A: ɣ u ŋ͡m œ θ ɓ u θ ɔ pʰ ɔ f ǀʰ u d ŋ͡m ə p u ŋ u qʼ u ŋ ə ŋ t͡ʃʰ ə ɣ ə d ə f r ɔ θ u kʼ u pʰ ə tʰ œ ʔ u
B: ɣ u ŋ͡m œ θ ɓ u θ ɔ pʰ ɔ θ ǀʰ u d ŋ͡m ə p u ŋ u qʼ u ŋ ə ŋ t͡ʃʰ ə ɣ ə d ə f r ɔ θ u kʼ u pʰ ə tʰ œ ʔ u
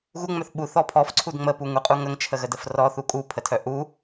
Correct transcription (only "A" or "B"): A